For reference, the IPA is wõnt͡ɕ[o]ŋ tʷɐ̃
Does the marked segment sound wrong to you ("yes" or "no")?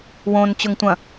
yes